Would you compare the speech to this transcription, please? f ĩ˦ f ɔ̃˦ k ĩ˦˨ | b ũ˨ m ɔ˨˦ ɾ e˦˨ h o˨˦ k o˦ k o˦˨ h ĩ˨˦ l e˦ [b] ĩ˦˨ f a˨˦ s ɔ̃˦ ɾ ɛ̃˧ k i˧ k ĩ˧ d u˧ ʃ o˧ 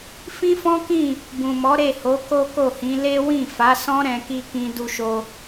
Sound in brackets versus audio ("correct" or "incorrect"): incorrect